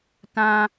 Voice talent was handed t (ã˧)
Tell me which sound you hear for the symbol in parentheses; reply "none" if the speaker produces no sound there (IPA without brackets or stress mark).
ã˧